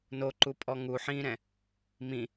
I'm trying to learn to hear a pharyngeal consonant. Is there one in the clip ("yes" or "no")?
yes